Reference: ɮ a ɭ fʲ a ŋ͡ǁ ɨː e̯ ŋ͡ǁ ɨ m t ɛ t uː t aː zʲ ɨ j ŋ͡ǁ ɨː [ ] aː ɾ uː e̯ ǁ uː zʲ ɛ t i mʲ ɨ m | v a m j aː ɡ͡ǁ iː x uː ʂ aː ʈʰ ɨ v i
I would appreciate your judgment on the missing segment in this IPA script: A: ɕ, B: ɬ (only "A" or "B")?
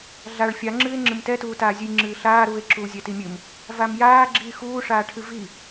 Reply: B